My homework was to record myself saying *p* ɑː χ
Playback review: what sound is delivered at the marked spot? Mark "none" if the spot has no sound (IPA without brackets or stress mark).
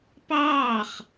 p